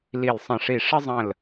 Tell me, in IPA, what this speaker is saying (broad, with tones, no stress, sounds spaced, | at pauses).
l i˧˩ l sˤ ə̃˧˩ ʂ i˧˩ ʂ ə˦ zˤ ə̃˧˩ l